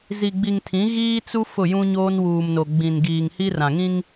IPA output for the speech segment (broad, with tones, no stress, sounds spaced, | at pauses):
z i˨ ɡ͡b i˨ ŋ tʰ ĩ˨˦ ɣ iː˦ t͡s u˦ f ʊ˦˨ j ũ˦ ɲ oː˦ n w uː˨ m n o˨ ɡ͡b ĩ˨ n ɡ iː˨ ŋ h i˦ r ã˨ ŋ ĩ˦ ŋ